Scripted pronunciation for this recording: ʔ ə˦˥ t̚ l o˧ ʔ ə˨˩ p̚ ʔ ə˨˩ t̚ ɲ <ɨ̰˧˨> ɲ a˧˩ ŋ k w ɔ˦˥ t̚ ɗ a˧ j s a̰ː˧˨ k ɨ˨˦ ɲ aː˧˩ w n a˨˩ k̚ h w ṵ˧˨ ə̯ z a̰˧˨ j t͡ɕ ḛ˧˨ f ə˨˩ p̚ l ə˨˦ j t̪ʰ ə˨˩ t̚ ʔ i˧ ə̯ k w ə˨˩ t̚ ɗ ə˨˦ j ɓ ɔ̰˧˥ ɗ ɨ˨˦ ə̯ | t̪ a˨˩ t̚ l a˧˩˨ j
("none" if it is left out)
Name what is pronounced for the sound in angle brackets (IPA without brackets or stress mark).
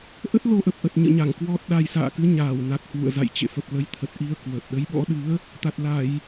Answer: ɨ̰˧˨